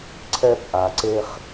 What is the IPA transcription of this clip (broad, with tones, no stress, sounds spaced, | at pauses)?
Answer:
ǀʰ ɛ˧ p ʔ a˨ ǀ e˧ χ